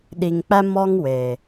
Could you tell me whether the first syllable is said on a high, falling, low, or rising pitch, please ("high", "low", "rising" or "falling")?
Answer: low